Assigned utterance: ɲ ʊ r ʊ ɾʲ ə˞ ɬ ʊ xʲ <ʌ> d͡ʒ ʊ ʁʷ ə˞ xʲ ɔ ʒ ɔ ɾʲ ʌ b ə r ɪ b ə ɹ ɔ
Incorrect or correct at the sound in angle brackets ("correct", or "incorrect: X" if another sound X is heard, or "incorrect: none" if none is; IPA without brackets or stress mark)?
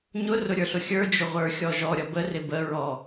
incorrect: ə˞